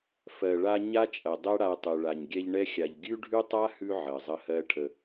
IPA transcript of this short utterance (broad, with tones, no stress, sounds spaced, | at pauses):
f ɜ˨ ɭ a˧ ɲ a˦ t͡ʃʼ ɐ˨ dˤ ɛ˦ ɽ a˧ tˤ ʉ˨ ɭ a˨ ɲ ɡʲ ɛ˧ ʎ ɳ ɛ˦ xʲ a˨ ʎ ɡʲ ʉ˦ ɖʱ ʉ˦ tˤ a˦ h ʉ˧ ʕ ɜ˨ zˤ ə˦ h ɜ˦ ʈʰ ə˧